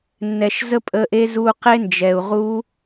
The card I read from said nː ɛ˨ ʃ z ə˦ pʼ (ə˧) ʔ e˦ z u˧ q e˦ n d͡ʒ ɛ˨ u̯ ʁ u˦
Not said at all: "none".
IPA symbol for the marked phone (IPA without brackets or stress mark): ə˧